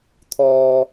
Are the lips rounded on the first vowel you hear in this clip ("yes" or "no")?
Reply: yes